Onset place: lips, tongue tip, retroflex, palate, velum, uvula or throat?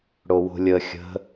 retroflex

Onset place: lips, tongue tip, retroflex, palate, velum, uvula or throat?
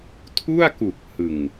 tongue tip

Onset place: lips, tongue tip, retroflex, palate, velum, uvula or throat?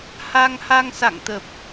throat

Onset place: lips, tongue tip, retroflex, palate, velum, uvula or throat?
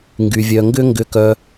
velum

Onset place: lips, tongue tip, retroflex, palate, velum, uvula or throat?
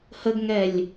throat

